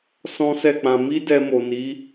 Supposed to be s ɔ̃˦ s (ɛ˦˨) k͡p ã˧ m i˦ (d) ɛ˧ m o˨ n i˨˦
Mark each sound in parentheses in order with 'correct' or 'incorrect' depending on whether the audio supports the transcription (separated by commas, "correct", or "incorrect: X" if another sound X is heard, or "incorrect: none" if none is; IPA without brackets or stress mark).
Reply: correct, correct